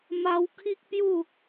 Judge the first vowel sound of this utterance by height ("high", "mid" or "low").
low